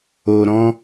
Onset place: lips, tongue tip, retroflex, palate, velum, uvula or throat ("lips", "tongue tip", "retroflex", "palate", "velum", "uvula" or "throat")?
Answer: tongue tip